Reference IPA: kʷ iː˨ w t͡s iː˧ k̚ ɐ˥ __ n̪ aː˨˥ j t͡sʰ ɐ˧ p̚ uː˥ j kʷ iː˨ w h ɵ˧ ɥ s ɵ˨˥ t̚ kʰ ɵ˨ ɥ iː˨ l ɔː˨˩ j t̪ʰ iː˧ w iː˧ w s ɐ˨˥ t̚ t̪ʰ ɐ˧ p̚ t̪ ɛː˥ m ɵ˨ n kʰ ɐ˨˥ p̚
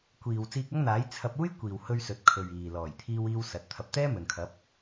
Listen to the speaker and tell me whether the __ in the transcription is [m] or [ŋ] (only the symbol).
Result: ŋ